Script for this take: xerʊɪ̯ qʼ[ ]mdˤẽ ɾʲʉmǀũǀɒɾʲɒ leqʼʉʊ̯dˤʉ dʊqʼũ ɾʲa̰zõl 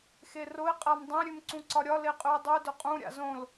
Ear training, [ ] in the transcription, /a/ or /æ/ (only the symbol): a